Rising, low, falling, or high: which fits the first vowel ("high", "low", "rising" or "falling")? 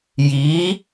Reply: rising